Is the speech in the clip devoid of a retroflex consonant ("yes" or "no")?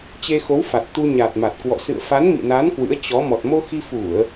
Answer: yes